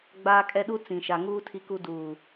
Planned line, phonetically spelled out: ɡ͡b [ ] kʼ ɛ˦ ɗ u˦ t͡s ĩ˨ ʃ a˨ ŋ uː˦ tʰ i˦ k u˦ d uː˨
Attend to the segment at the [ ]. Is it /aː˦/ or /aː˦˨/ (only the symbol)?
aː˦